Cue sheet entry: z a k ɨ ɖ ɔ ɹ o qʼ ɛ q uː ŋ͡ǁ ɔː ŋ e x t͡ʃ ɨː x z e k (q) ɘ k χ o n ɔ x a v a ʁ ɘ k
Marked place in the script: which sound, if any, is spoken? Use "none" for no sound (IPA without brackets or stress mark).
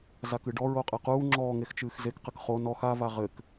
q